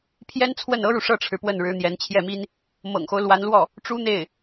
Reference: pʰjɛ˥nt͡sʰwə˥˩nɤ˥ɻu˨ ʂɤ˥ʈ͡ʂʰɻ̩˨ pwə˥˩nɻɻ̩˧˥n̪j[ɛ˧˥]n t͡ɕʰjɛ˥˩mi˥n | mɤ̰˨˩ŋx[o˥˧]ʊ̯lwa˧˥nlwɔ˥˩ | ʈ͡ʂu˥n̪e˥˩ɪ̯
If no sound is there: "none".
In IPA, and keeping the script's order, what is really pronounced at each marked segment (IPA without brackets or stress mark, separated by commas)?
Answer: ɛ˧˥, o˦